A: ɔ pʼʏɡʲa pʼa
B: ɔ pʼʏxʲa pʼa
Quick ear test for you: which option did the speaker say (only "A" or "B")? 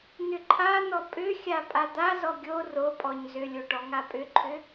B